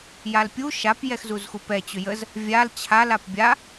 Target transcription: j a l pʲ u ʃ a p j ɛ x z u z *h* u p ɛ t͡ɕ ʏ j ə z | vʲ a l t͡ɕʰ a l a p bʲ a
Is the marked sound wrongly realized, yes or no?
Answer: yes